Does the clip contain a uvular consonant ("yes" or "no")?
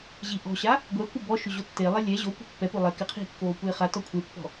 yes